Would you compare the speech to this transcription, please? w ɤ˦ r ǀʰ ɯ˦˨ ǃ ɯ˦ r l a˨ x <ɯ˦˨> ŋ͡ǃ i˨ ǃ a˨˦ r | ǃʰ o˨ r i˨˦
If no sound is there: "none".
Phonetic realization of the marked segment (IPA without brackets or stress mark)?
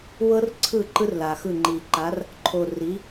ɯ˦˨